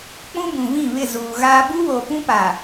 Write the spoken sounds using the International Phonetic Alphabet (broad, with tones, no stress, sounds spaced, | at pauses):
k͡p ũ˦ b ũ˨ v ĩ˦˨ β ɪ˦˨ z uː˨ ɣ aː˦ b u˦ β oː˨ p ũ˦ p a˨